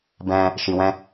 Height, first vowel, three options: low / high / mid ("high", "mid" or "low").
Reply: mid